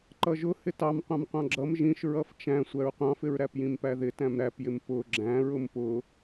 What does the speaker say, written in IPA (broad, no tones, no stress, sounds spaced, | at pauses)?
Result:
ǃ ʌ ʒ ʊ h ɪ t ɑ m qʷ ɑ̃ m qʷ ɑ̃ ɡ͡ǁ ʌ m ʒ ĩ ʃ ɹ ʌ f t͡ʃ æ̃ sʷ æ ɹ qʷ ɑ̃ f ɪ ɹ ɾ æ p j ĩ m p æ ð ɪ t æ̃ m ɾ æ p j ɪ m p ʊ ɡ͡ǁ æ̃ ɹ ʊ m p ʊ